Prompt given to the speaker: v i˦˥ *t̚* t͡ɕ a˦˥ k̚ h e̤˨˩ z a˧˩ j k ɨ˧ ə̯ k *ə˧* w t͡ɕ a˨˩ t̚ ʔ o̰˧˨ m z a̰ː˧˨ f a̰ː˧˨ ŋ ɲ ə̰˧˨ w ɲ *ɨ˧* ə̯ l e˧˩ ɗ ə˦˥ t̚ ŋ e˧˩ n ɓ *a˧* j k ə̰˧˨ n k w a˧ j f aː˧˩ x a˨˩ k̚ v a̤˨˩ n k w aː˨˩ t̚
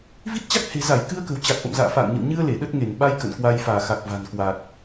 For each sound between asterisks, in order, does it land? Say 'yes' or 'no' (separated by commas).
yes, no, yes, yes